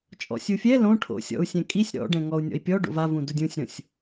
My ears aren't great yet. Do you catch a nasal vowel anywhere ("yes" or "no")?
yes